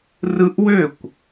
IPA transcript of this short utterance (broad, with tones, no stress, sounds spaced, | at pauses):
r ɯ˦˥ ʔ w ø˥˨ kʷ